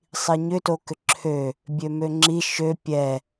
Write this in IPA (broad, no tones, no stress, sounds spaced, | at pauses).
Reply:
sˤ i ɲ ʏ t o k ʏ ǁʰ ø | bʲ ø m ø ŋ͡ǁ i ʃ ø pʲ ɛ